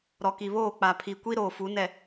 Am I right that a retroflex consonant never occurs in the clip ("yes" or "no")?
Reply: yes